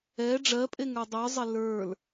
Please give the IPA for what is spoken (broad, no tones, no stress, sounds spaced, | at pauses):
ɛ ɖ͡ʐ ɜ pʼ e ŋ ə˞ dˤ ə˞ zˤ e l ə˞ l